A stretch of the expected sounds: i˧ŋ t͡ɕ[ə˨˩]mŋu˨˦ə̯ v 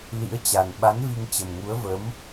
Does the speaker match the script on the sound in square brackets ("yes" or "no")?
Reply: yes